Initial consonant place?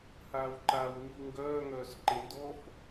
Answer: glottal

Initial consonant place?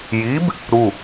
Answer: palatal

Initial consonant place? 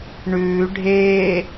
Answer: retroflex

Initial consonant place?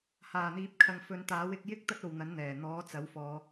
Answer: glottal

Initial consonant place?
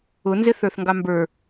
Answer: alveolar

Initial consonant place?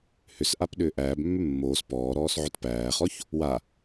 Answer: glottal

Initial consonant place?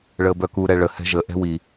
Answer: retroflex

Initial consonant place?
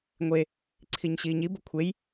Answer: velar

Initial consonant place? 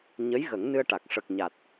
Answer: palatal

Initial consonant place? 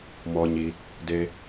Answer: labial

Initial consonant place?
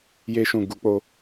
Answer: palatal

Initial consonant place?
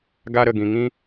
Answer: velar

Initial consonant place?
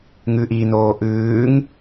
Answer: velar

